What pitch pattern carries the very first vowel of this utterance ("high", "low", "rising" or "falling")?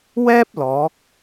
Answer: high